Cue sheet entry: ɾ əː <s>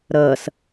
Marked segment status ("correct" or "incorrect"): correct